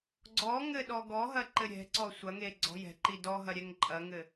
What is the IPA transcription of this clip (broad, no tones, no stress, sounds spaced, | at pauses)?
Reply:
ɡ͡ǀ ɔ ŋ ɘ ɗ ɔ ɡ ɔ ɦ ɐ ǃ ɘ ɾʲ ɛ̤ ǀ ɔ sʷ ɐ ŋ e ɡ͡ǀ ɔ̤ j ɛ̤ ǃ i d ɔ ɦ ɐ ɾʲ ɛ ŋ ǃʼ ɐ ŋ ɘ